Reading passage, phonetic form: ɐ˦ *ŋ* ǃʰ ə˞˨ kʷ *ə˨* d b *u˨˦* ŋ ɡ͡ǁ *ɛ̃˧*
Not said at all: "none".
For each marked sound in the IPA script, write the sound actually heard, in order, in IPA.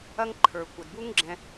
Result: ŋ, ə˨, u˦, ɛ̃˧

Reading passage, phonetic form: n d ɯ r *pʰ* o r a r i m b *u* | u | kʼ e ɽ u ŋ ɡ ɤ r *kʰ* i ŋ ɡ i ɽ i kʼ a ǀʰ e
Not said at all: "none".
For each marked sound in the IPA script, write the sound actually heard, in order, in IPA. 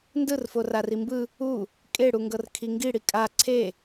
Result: f, ɯ, kʰ

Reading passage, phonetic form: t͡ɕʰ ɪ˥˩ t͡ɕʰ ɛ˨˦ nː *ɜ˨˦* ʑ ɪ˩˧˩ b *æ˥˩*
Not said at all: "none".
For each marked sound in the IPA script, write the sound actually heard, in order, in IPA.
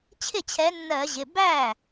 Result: ɜ˧˩˧, æ˥˩

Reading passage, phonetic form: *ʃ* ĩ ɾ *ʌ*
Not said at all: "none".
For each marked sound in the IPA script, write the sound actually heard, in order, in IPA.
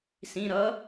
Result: s, ʌ

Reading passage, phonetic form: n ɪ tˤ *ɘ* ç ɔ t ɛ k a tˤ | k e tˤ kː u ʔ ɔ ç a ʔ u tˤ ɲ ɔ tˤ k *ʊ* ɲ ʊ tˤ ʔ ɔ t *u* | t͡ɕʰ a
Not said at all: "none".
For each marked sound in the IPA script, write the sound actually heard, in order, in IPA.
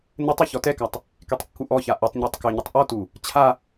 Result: e, ʊ, u

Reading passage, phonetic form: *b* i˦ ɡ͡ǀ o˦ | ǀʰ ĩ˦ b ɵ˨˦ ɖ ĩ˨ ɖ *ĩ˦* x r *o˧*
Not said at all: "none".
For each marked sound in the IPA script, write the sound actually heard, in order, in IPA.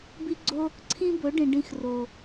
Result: b, ĩ˧, o˨

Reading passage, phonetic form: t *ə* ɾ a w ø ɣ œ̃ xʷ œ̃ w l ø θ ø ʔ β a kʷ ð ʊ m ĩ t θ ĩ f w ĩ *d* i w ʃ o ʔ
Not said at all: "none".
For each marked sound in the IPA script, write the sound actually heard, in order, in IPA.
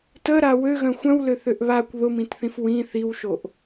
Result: ə, θ

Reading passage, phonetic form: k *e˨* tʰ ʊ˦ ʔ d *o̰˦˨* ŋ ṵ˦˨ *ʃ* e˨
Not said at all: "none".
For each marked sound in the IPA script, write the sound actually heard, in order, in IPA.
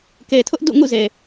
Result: e˨, ṵ˦˨, z

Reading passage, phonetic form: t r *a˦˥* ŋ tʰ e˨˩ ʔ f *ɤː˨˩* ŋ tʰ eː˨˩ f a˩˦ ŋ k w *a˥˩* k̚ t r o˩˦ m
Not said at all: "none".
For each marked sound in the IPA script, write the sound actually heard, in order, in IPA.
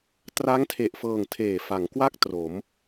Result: a˦˥, ɤː˨˩, a˥˩

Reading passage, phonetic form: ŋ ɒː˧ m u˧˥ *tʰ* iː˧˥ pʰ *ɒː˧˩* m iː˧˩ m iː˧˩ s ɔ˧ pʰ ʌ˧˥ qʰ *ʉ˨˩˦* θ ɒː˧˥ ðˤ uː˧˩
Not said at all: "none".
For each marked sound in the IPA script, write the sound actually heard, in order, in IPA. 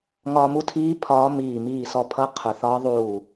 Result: tʰ, ɒː˧˥, ʊ˨˩˦

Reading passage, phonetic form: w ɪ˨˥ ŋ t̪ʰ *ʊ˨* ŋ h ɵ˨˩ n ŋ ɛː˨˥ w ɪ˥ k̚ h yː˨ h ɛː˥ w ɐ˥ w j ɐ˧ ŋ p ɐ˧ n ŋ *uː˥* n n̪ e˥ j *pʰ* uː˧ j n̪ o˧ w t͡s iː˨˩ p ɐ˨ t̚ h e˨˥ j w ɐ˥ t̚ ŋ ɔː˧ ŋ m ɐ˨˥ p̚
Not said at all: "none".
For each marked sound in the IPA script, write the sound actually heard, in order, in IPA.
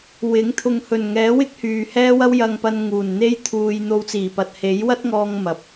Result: ʊ˨, uː˨˩, t̪ʰ

